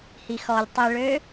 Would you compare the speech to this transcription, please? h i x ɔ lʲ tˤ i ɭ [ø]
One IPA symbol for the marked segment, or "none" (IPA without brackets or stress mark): ø